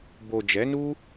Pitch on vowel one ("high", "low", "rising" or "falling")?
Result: low